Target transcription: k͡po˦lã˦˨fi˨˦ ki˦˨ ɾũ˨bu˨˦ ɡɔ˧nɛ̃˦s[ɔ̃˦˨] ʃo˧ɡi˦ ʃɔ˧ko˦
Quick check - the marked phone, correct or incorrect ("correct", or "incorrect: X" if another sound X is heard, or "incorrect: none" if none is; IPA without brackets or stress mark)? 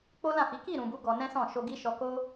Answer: correct